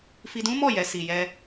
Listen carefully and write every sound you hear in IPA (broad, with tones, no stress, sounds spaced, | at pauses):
f i˧ d ũ˦ m ɔ˦˨ j ɛ˨ s i˨ j ɛ˧